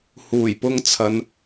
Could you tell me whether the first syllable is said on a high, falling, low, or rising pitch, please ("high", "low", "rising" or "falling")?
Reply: low